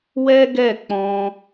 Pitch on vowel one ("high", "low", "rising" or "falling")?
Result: high